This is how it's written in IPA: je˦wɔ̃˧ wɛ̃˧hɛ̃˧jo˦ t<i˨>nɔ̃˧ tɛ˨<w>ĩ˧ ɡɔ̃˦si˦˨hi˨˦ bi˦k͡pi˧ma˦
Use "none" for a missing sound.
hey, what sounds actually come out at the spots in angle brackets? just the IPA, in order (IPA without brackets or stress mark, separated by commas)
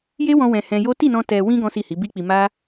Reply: i˦˨, w